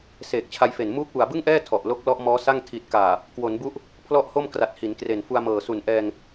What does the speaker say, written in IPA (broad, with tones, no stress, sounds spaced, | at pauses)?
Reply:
s eː˨˩ k̚ t͡ɕʰ a˧ j f e˨˩ n m uː˦˥ k̚ w u˨˩ a̯ b ɯ˥˩ ŋ ʔ ɛː˥˩ tʰ ɔ˨˩ ʔ l o˦˥ k̚ l ɔ˦˥ ʔ m ɔː˦˥ s a˥˩ ŋ tʰ i˨˩ t̚ k aː˨˩ | k w o˩˦ n b u˦˥ ʔ | pʰ l ɔ˥˩ ʔ h o˥˩ m k r a˨˩ t̚ h i˩˦ n k r e˨˩ n f u˧ a̯ m ɤː˨˩ s u˨˩ n ʔ ɛː˧ ŋ